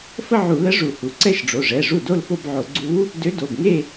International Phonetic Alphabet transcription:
fə˥˧ʕu˧˩˧lə˧˥ ʐu˧˩˧hu˩˧˩ ǀɛ˥˧ʃɖ͡ʐo˩˧˩ʐɛ˩˧˩ʐu˥˩ do˥˧lfo˥˧bʕo˧˩˧ ɡ͡ǀu˧˥ | dø˧˥do˩˧˩bŋe˥˧

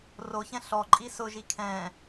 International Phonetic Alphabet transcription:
roçɛ̃ ɬɔ ǃʼisʊʒi kʰɛ̃

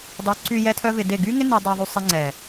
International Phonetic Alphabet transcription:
dˤy˨˦ǀy˧ jɛ˦tʰœ˦vɪ˧de˦˨ ɡy˦ŋɪ˦ ni˧dˤɛ˧ðˤy˧ sˤɪ˧ŋ͡ǀɛ˨

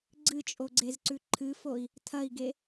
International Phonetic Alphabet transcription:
ɡ͡ǀɨt͡ʃʼoɡ͡ǀezǀʉ ǃʰɨfoi̯ | tʰɐi̯ɡe

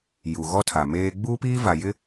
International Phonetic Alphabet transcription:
ju˨ɣɔ˦tʰa˨ meː˦ ɡ͡buː˦piː˦va˨jɪ˦

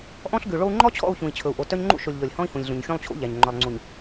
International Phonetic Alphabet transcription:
ʔɔ̃˦ɬɡʉ˨ɭo˦u̯ ŋ͡ǃɔ˦t͡ɕʰɔ̰˦˨u̯ çũ˨i̯t͡ɕʰɵ˨u̯ʔo˨ tœ˦ɲŋ͡ǃṵ˦ʃo˨lʲ ʎɔ˨lʲhɔ̃˦i̯hũ˨lʲɮũ˨ɲ xʲõ˦lˠt͡ɕʰṵ˦ ʎæ˨ɲ ŋ͡ǃœ˨lˠŋ͡ǀu˨ɲ

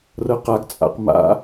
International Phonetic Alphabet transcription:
rɤqaɡt͡sʼa̰q ma̰

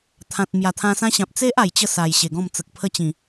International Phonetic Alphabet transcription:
t̪ʰã˨t̚ mja˨˩t̪ʰã˧ sã˦ɕã˨p̚ t͡se˦ʔ a˨˩jt͡ɕə˥˧sa˨˩j ɕe˨˩ɡɔ̃˥˧m t͡sə˨k̚pʰə˥˧t͡ɕĩ˨˩

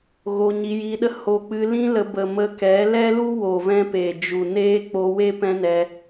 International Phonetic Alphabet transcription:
ɣo˧ɲi˧ji˧ɗə˦ ho˧k͡pɨ˧lĩ˦ lə˧bə˨mə˧kɛ˨˦ lɛ˦lu˦wo˨vɛ̃˧ pe˨d͡ʒu˨ neː˦k͡po˧we˦ pɛ̃˦nɛ˧

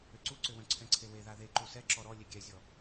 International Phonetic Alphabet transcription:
ʏǀuǀʏwœ̃ ǀʰɛ̃ǀʰewe ðaðeǃu sɛǁɔ ɾɔ lʲeɡʲɛzʲɔ

